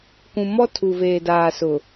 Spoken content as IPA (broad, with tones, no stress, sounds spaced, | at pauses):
k ũ˨ m ɔ˦ tʰ u˨ v eː˨ d aː˨ s ʊ˨